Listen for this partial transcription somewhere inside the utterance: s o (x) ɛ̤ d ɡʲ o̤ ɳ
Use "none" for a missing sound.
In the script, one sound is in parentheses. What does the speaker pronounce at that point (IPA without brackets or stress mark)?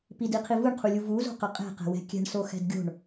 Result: x